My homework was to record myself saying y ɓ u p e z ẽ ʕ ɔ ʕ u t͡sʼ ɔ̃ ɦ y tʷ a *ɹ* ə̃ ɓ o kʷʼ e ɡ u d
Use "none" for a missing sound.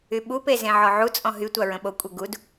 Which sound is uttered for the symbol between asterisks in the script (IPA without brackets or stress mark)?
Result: ɹ